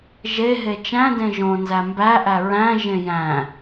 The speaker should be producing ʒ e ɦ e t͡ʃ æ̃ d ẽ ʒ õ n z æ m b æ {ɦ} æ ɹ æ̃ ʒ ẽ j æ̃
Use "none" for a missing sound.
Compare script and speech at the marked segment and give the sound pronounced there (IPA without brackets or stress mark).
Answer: ʔ